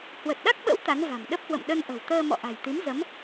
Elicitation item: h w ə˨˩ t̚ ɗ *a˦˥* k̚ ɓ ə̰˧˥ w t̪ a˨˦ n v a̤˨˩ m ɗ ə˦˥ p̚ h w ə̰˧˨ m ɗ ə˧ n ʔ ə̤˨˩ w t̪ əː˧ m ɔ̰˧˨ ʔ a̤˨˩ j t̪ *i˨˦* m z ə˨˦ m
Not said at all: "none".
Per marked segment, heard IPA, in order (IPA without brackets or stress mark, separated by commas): a˦˥, i˨˦